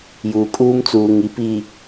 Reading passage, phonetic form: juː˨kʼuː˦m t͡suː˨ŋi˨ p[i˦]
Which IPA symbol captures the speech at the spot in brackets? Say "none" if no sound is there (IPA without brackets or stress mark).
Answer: i˨